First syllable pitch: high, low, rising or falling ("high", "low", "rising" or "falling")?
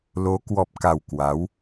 rising